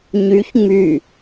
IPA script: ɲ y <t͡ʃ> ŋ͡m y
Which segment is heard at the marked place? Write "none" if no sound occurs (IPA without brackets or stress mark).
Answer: ç